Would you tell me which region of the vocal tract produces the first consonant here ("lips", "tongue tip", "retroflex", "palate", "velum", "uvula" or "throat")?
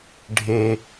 retroflex